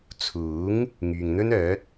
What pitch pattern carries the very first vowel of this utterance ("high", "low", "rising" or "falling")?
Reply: rising